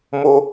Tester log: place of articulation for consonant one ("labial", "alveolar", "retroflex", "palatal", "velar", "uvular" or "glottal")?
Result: labial